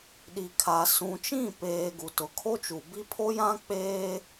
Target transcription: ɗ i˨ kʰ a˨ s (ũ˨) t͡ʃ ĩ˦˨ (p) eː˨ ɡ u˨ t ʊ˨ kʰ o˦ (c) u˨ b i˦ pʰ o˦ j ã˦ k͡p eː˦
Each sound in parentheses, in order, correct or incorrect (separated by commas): correct, correct, incorrect